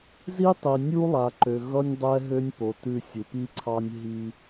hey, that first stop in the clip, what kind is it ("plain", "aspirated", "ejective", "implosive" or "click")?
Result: plain